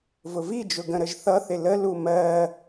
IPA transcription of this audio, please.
v ʊ v i d͡ʒ ʊ ɡ ə̃ ɾ ə ʒ θ ʌ θ ɪ l ə l u m ɜ

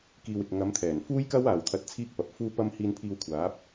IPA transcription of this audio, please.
k iː˨ w ɪ˨ k̚ ŋ ɐ˨˧ m t̪ʰ ɛː˨˩ n f uː˥ j k ɐ˥ w aː˨ w t̪ʰ ɐ˧ t̚ t͡sʰ iː˥ k̚ p ɐ˨˥ p̚ f uː˥ p ɐ˥ m h iː˧ n pʰ iː˧ w kʷʰ aː˨˥ p̚

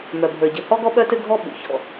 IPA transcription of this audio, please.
m œ˩ bʱ ə˞˩ ɟ ɘ˩ h ɔ˥ ɡ ɔ˥ ɓ œ˥ t ɘ˥ ɡʱ ɔ˥ ɓ ṵ˩ ç ɔ̰˩

